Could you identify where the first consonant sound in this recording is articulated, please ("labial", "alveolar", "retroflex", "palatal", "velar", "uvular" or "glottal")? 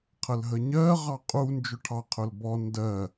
uvular